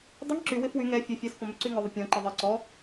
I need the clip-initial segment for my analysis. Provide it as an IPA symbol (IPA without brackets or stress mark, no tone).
dˤ